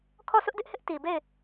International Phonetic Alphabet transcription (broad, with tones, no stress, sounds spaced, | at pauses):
kʰ ɔ˦˨ sʰ ʊ˦ ʔ d ɪ˦ ʔ h ɪ˦ ʔ t i˨ b e˦˨ ɪ̯